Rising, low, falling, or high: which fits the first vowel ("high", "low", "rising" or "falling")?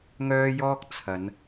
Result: high